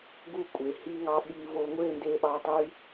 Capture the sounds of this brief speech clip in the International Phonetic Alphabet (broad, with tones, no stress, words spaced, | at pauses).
ɡu˦˨kʷʼe˨ hi˧ŋɑ˧ ɓi˧vo˧ ŋʷe˦˨nde˧ɓɑ˧ tˤy˦